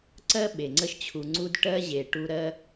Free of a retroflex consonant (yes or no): no